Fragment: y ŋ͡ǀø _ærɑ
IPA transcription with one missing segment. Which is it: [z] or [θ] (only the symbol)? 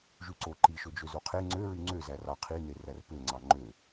z